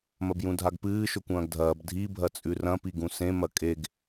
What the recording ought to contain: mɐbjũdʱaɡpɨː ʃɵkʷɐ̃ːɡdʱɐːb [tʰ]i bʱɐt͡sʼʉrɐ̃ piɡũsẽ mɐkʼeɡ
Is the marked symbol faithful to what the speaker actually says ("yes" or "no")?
no